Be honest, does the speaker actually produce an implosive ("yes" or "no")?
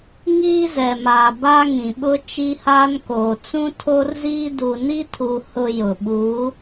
yes